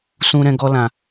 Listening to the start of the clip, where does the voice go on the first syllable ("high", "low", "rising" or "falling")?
high